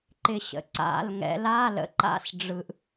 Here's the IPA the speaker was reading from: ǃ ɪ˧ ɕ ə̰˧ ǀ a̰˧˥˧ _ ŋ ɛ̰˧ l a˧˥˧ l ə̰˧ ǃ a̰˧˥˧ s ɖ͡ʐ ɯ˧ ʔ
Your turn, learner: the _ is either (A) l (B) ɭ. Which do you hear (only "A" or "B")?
A